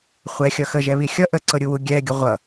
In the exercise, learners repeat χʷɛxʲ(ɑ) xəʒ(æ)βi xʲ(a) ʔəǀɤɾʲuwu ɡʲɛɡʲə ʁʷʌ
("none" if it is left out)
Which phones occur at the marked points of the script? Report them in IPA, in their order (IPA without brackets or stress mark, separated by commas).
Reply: ʌ, ɛ, ʌ